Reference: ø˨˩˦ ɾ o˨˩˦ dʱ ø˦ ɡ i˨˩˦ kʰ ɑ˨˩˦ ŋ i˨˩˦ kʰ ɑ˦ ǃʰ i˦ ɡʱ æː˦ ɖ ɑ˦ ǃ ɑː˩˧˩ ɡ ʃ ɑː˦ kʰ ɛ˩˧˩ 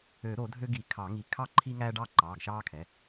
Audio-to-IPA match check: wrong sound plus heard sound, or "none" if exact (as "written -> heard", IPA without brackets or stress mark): ɡʱ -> ŋ